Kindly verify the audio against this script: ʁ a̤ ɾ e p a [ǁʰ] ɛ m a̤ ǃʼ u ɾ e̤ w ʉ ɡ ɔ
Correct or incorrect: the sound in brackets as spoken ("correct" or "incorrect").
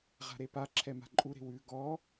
correct